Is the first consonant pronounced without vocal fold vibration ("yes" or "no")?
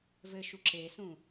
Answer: no